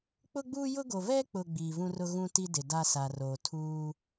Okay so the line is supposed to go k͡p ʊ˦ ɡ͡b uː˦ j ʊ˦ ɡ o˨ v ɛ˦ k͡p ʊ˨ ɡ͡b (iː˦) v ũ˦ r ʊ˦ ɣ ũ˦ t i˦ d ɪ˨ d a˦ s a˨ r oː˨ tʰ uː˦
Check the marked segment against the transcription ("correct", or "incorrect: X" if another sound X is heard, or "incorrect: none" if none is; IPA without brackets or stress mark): incorrect: iː˨